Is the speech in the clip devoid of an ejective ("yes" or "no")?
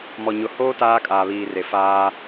no